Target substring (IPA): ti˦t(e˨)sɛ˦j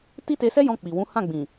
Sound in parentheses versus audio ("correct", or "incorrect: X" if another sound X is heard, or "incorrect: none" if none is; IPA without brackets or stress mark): incorrect: e˧